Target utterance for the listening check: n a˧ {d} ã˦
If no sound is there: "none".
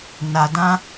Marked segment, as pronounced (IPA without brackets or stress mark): d